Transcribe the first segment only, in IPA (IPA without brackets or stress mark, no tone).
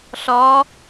ɬ